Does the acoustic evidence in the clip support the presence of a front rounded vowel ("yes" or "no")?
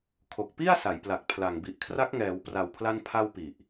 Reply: no